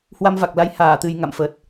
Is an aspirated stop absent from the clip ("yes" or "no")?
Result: yes